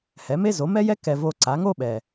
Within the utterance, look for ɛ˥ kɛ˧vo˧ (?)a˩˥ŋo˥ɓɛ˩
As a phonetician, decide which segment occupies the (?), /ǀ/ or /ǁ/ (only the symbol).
ǀ